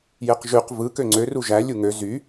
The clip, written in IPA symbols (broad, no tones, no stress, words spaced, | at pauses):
jeqʒyq vɯ køŋ͡ǀø ruʒæ lʲuŋø zy